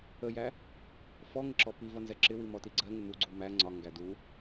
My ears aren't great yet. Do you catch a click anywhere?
yes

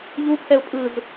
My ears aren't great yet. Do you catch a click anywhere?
no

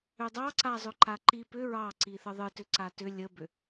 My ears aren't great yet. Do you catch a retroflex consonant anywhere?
no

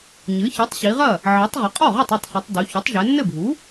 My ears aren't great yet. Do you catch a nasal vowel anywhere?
no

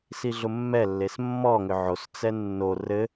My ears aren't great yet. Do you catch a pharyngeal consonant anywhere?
yes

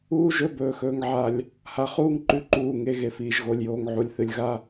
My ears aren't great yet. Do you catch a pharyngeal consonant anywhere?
yes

